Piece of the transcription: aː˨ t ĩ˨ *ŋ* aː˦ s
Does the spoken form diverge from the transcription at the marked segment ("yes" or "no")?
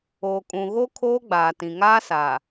no